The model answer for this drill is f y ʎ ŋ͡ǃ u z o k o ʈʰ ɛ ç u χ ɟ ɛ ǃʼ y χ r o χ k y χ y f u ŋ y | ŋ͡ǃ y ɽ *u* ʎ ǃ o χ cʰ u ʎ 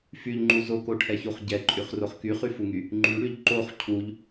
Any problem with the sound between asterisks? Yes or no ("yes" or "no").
yes